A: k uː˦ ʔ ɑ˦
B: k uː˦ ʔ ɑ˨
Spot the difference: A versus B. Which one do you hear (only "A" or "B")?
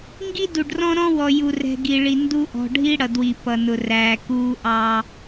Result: A